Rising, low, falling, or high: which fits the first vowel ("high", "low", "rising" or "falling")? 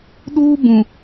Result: high